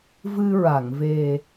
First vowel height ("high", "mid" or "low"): high